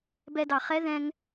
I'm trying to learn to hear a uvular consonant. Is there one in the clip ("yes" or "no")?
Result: yes